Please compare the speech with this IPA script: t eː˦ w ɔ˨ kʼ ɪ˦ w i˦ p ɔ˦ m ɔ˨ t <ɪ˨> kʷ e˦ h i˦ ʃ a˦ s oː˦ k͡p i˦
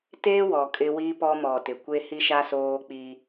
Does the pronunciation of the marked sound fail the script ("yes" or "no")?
no